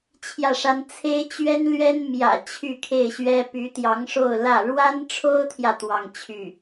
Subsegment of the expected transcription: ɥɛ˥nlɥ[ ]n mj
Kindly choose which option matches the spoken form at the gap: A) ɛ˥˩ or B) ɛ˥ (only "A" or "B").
B